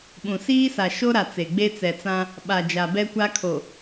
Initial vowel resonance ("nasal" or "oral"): nasal